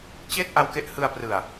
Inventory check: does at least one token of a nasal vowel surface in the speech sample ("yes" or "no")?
no